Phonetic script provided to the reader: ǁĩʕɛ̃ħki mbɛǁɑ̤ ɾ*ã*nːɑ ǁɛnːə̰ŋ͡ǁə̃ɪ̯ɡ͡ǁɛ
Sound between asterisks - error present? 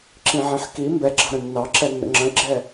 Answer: yes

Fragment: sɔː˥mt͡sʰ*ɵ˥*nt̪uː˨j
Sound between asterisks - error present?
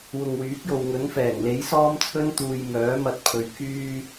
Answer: no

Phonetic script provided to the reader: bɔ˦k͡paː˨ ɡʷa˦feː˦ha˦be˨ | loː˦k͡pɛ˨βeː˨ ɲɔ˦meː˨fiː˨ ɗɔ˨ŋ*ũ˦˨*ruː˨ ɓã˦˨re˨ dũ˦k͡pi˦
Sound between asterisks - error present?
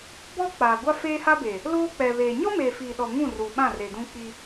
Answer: no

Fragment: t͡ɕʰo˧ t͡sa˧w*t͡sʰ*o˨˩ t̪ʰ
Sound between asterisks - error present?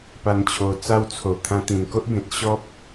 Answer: no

